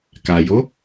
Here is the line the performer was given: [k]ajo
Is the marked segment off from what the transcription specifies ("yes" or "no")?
no